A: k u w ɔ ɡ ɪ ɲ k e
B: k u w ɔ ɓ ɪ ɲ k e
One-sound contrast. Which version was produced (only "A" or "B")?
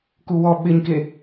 B